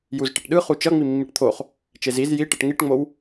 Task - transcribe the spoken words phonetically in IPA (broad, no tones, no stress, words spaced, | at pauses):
juzʈeʈɗɯ χut͡ʃʌ ŋ͡mimːiʈt̪ʰoχ | t͡ʃeziz jiʈʌʈ ŋiʈŋ͡mow